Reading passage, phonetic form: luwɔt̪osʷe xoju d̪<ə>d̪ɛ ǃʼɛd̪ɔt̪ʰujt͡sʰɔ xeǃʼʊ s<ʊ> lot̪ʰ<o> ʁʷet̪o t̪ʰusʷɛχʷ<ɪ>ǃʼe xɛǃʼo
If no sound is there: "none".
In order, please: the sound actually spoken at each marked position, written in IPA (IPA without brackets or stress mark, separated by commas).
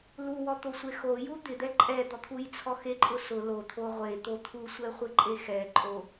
ɪ, ʊ, o, ɪ